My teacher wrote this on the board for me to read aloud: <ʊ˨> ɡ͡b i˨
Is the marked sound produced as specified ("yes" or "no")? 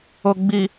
yes